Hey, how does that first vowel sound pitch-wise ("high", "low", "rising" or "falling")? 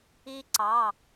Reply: high